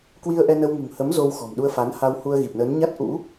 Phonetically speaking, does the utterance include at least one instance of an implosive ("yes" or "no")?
yes